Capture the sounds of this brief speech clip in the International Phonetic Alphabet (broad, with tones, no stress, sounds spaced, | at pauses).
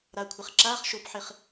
ɾ a˩ kʷʰ ɪ˩ χ ǁ aː˧˥˧ χ ʃ o˩˥ p ħ ɪ˩ χ